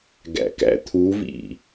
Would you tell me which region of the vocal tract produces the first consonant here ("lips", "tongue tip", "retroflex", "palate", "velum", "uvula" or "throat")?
velum